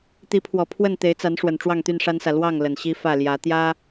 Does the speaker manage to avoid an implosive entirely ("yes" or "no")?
yes